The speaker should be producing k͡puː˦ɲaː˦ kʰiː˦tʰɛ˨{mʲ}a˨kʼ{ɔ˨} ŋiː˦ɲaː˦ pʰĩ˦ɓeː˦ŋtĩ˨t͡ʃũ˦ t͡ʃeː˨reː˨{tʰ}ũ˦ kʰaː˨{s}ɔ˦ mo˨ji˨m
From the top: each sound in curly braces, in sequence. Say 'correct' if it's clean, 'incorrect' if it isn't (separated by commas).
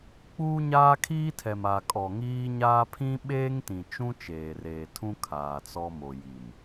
incorrect, correct, correct, incorrect